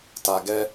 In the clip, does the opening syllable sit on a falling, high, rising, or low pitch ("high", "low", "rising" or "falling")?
low